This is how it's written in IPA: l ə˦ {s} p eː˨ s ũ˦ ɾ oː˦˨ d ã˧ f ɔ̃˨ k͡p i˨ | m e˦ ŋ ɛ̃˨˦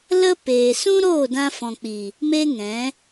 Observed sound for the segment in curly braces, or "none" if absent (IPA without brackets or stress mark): none